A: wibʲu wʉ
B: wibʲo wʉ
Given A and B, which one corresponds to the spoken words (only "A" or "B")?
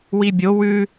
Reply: B